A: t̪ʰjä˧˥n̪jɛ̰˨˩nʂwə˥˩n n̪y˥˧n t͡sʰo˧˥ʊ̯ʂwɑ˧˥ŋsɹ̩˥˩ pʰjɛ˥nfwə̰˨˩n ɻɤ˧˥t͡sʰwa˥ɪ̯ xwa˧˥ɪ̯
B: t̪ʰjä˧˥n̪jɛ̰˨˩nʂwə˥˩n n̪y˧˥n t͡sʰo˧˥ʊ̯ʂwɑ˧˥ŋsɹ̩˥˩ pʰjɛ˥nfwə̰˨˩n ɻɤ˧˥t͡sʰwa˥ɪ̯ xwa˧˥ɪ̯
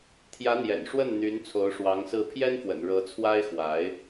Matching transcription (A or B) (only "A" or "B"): B